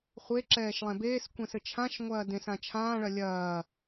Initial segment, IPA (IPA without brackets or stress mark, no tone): χʷ